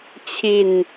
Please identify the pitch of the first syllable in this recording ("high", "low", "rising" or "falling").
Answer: low